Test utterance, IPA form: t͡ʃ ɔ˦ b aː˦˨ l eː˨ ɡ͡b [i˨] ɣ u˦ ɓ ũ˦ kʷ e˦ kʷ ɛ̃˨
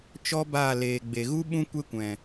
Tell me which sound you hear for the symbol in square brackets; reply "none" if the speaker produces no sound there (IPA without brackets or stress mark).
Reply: e˨